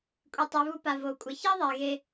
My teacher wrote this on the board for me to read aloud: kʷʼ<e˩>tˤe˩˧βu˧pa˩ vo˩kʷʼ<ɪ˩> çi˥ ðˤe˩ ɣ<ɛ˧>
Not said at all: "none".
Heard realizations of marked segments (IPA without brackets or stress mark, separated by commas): i˩, ɪ˩, e˧